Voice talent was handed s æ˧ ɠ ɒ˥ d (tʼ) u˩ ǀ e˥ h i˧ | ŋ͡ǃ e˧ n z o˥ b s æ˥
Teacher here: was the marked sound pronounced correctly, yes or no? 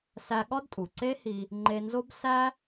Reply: yes